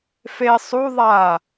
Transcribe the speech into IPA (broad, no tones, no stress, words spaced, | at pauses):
fe sˤu ðˤa